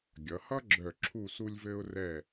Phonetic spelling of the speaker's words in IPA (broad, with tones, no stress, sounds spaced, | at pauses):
ɡʲ ʌ˩˧ h ʌ˥ ɡ͡ǁ œ˧˩ ǁʰ u˧˩ s u˧ lʲ v ɘ˧ ʊ̯ r ɛ˧˩